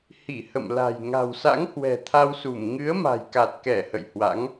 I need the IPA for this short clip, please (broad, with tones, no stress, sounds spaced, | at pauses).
h i˧˩ h ə̰˧˨ m l a̤˨˩ j ŋ a̤˨˩ w s a̰˧˥ ŋ h w ɛ̤˨˩ t̪ʰ a˧ w s u˧˩ m ŋ ɨ˨˦ ə̯ m a̤˨˩ j k a˨˩ t̚ k ɛ˧˩ h ə̰˧˨ j h w a̰˧˥ ŋ